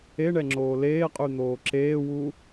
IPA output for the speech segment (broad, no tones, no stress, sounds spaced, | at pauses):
e ɳ ɛ ŋ͡ǁ oː l eː qʼ y n̪ oː ǁ eː w u